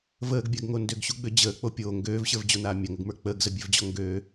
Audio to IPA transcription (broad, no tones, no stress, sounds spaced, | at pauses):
v əː ɡ bʲ a ɡ ŋ o n d ø ɡ ɕ u ɡ͡b ø d͡ʑ əː k͡p o pʲ oː ŋ ɡ øː v ɕ ə˞ v d͡ʑ o n aː mʲ a ŋ ə ɡ m ə˞ k͡p əː ɡ z ə bʲ ø v d͡ʑ ɔ ŋ ɡ øː